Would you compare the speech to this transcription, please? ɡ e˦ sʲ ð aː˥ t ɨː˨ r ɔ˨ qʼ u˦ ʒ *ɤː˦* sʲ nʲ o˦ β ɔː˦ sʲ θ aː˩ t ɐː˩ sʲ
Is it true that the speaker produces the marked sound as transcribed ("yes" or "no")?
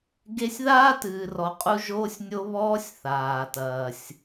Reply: no